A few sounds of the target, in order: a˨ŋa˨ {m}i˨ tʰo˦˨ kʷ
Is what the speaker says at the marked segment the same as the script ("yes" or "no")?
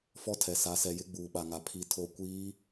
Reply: no